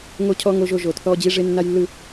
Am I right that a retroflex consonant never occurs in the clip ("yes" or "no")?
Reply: no